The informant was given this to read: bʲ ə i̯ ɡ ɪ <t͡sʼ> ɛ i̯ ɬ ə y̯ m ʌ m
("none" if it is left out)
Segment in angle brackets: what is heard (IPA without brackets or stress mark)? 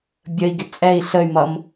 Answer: t͡sʼ